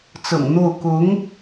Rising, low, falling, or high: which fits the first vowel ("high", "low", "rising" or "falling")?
low